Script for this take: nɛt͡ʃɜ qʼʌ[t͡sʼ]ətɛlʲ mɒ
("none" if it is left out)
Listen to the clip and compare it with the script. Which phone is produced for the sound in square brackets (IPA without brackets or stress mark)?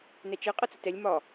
t͡s